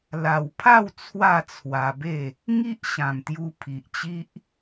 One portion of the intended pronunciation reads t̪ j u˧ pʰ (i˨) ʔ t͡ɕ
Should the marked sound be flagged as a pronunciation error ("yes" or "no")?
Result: no